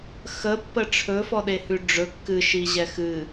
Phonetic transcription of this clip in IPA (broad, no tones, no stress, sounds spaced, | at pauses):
x ə pː ə ʈ͡ʂʰ ɵ f ɔ ɗ e h ʉ ɖ͡ʐ ɵ kː ɨ ʃ i ʑ ɛ x ɨ